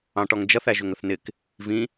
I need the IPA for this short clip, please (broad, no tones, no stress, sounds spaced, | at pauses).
ɑ̃ ʈ ɔ ŋ d͡ʒ ʌ θ æ ʒ ʊ ŋ ə θ n ɪ k | v ĩ